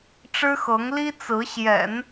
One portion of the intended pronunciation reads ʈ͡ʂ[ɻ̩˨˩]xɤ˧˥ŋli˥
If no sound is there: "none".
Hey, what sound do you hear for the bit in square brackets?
ɻ̩˥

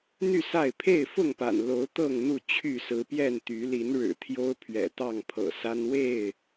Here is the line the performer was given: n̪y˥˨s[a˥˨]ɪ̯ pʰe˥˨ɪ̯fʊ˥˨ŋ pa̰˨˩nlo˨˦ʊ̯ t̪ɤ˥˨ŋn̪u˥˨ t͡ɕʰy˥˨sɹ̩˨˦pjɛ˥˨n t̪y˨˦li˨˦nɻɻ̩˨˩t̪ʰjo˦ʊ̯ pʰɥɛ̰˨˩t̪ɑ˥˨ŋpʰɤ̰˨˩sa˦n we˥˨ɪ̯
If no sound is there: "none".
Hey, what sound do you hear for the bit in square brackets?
a˥˨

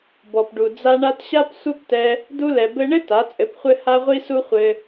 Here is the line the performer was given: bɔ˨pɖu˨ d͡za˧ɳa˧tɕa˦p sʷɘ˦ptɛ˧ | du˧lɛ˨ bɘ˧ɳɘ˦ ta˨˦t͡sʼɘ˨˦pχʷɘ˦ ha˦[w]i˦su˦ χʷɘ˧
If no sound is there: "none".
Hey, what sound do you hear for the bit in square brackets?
ʁʷ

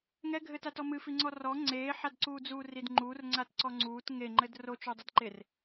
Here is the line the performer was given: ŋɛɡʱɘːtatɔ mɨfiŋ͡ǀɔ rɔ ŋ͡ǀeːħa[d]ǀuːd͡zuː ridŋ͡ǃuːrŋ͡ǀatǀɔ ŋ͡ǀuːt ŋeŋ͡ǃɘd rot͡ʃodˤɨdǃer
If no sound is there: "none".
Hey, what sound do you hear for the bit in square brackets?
d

